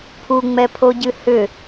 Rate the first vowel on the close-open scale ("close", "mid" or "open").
close